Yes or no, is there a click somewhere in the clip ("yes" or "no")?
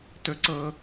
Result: yes